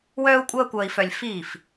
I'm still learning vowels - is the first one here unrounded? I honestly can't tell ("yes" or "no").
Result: no